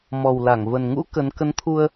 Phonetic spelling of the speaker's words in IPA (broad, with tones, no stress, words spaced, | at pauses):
mɔ˨˩wla˧˩ŋvə˨˩nŋṵ˧˥ kə˨˦n kə˨˦nt̪ʰu˧ə̯